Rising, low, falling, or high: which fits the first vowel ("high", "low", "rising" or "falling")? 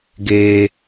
high